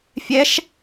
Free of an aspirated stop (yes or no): yes